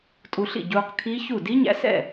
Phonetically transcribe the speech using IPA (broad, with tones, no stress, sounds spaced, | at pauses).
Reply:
tʼ u˧ ɬ ḭ˥˨ ɟ uː˧ q kʰ iː˦˥ ç u˥˨ d i˦˥ ɲ æ̰˧ s ɛ̰˥˨